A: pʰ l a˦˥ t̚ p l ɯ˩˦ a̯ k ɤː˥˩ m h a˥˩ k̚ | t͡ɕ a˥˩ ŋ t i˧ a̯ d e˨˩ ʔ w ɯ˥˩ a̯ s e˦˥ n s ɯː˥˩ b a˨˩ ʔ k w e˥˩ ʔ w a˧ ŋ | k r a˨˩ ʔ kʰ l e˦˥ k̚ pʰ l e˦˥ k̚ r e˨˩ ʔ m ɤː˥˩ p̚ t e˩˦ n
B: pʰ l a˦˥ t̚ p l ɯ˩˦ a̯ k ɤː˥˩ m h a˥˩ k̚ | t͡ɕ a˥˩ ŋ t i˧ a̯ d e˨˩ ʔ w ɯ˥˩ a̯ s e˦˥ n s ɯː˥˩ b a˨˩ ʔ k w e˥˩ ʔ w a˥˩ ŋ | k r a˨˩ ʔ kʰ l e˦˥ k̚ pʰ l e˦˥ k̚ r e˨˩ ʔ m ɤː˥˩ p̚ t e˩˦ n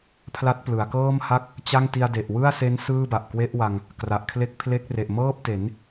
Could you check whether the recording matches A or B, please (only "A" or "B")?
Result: A